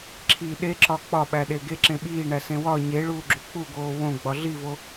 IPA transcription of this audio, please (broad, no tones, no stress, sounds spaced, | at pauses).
ǁʰ i ɗ e ǁ ɒ k͡p ɒ ɓ æ ɗ e ɡ e ǁ ẽ ɓ iː ɳ æ s ẽ w ɒ ɲ e ɭ uː ɡ͡ǁ u k͡p u ɡ oː w õ ɡ͡b ɒ ɮ i v o